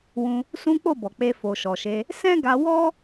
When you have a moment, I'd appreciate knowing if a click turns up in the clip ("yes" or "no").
no